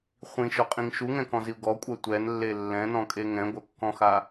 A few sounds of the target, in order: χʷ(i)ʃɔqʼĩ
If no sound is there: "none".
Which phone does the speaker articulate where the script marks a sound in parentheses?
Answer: ĩ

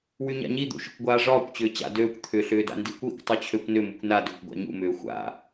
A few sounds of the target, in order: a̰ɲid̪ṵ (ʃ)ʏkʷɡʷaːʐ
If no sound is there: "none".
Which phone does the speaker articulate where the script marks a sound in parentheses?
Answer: ʃ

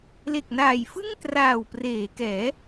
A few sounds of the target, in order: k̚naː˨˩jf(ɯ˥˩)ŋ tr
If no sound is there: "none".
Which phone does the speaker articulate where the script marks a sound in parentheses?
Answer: ɯ˥˩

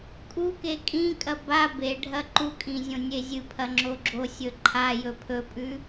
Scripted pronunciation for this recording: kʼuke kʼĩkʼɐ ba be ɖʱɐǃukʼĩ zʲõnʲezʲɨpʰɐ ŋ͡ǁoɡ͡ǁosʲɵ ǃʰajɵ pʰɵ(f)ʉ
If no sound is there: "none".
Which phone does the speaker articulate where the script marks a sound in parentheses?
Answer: pʼ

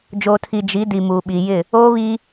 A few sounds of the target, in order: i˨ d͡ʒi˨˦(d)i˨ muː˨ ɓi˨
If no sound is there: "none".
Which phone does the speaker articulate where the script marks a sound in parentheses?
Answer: d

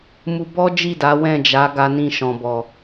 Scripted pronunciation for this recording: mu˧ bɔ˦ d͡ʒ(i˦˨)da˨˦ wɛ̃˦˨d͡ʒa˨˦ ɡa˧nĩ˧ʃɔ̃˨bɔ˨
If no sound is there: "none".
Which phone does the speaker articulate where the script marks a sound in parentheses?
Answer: i˦˨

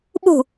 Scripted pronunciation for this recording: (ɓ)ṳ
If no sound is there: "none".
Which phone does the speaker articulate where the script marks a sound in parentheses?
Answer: ɓ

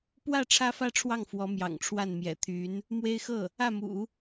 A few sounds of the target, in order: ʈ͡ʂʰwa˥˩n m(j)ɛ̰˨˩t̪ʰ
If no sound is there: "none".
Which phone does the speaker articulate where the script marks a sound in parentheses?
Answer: j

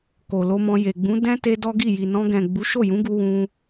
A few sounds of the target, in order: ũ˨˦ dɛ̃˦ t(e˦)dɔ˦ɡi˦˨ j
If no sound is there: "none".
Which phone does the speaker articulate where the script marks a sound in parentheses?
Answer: e˦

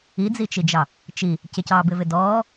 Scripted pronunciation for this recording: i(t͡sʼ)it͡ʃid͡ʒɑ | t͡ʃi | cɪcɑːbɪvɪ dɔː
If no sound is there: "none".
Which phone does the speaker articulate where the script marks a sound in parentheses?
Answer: d͡z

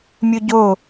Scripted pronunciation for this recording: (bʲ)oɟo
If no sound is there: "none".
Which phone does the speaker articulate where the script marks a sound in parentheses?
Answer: mʲ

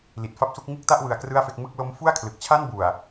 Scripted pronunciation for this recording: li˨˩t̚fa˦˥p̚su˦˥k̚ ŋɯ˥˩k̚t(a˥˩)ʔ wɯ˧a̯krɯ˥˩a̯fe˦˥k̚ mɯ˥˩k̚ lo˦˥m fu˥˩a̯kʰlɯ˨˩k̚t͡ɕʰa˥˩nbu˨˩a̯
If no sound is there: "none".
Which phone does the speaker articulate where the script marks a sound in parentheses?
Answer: a˥˩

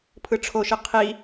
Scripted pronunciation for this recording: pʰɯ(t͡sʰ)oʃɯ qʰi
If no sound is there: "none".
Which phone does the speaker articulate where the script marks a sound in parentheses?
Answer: ʈ͡ʂʰ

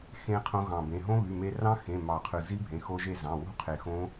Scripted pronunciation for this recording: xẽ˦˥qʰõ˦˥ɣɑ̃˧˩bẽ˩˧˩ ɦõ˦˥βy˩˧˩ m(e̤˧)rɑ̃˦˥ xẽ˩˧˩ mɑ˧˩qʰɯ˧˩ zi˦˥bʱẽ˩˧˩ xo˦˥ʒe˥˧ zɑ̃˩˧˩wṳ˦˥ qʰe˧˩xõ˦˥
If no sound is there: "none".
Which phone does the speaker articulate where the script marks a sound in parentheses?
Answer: e˧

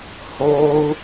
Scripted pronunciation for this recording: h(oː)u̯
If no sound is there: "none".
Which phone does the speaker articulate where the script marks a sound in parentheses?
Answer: oː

